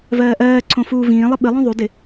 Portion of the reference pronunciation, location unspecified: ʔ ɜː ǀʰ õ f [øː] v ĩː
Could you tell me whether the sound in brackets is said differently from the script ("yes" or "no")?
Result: yes